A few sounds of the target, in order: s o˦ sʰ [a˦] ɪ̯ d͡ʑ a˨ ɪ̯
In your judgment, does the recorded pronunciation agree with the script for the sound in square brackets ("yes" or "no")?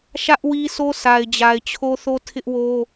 no